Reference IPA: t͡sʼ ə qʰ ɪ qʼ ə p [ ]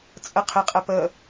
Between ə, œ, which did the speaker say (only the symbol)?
ə